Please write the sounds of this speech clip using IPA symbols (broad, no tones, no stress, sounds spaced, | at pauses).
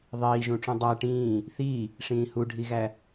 ðˤ iː ʒ ũ ʈ͡ʂ ũ dˤ æ ʈ ĩː | θ iː | ʂ ĩː h u ɖʱ i ɣ æ